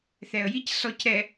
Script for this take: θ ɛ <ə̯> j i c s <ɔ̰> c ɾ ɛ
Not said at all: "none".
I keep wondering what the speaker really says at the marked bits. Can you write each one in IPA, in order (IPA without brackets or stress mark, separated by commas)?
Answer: ə̯, ɔ